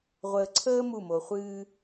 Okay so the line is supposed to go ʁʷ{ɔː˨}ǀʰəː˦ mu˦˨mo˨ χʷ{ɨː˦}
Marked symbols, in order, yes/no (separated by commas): no, yes